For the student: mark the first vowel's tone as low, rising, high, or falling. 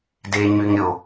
high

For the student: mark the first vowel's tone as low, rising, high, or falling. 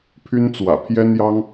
high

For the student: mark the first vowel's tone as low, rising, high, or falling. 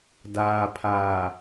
low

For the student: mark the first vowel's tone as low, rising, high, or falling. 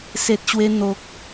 low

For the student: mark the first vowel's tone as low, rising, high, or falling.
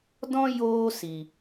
high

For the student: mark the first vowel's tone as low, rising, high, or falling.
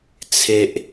high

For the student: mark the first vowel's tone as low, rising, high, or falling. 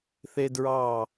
high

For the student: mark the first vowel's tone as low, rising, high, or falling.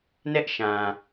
high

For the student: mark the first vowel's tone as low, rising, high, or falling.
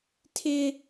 high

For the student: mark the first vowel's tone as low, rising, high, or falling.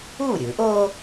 falling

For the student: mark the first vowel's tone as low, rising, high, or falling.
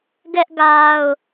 high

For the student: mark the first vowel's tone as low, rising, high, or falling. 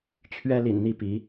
high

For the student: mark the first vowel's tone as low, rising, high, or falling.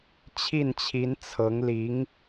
falling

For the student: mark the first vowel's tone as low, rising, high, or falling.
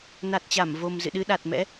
low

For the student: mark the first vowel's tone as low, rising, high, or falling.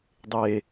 low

